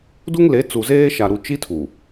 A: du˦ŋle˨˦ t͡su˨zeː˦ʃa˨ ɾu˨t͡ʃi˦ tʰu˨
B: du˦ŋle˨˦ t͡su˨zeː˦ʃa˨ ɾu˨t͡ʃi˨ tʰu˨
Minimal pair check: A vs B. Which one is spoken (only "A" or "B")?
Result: A